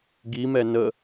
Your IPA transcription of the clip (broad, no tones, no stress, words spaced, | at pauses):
ɡimɛ nə